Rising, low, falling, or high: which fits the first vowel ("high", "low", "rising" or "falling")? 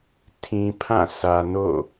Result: low